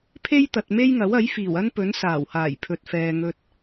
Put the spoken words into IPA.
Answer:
pʰ e˥ j t̪ ɐ˨ t̚ m e˥ j ŋ ɐ˨˥ w ɐ˨˥ j f iː˨˩ w ɐ˥ n p ɵ˨˥ n s aː˨˩ w h aː˨˩ j pʰ ɵ˨ t̚ f ɛː˨ ŋ ɵ˧ t̚

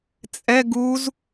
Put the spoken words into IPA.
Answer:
t͡sʼ ɛ ɡ u z

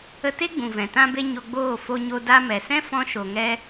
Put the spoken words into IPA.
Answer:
ə˧ t e˦ ɡ͡b ũ˨ v ɛ̃˨ t ã˦ b e˦ ɲ o˧ ɡ͡b oː˦˨ f o˧ ɲ o˧ d a˧ m ɛ˨ s ɛ̃˦ f ɔ̃˦ ʃ o˧ ŋ ɛ˦

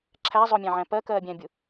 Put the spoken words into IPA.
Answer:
ǁʰ æ zˤ ʊ mʲ æ̃ ʕ æ̃ p ɜ k ɜː bʲ æ̃ bʲ ʊ

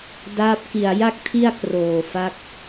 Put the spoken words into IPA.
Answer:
d aː˦˥ p̚ k i˨˩ a̯ j a˥˩ k̚ tʰ i˥˩ a̯ k r oː˨˩ f a˦˥ k̚

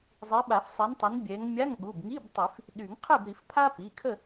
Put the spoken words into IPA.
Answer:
zˤ i˨˦ ɓ a˨˩˦ f sˤ i˨˦ n tˤ ə˨˦ n bʲ ɛ˨˦ ŋ mʲ a˧˥˧ ŋ ɠ u˩˧˩ b ŋ i˧˥˧ b tˤ i˨˩˦ f | ɗ y˨˩˦ ŋ qʰ ɛ˥˨ b ɾ i˨˩˦ f pʰ a˥ p i˩˧˩ kʰ ə˥˨

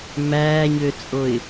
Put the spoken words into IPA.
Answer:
m æː ɲ ø t͡sʼ o ɪ̯

